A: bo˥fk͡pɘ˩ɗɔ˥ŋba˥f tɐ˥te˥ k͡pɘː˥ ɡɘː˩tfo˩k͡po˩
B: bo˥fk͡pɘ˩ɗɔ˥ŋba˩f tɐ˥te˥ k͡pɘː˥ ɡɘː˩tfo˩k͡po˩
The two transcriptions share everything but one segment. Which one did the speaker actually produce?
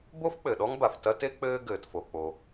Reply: B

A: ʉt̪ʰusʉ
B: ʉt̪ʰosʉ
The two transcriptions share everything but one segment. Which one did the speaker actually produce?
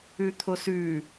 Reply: B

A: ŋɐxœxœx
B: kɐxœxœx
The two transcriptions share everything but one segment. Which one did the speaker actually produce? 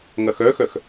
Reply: A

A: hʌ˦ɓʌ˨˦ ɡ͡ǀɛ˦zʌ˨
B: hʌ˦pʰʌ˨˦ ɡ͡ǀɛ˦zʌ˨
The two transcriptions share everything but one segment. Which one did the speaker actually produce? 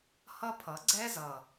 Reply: B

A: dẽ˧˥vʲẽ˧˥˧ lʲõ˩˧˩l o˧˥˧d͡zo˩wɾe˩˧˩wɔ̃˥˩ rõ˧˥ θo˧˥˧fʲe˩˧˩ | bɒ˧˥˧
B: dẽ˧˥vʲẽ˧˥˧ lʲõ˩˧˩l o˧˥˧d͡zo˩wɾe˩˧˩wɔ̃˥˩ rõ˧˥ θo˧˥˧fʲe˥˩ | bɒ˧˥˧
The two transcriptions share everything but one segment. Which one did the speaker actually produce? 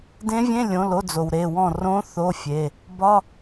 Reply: A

